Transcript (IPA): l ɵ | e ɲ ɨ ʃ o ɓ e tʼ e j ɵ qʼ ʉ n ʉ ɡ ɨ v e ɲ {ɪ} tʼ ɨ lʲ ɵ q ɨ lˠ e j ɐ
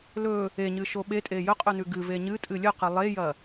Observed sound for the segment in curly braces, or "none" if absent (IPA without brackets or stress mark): ɨ